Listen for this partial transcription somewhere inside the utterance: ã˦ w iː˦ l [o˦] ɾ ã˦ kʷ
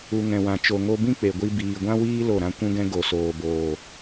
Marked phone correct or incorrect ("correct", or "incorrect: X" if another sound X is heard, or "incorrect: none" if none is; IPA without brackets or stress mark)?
incorrect: o˦˨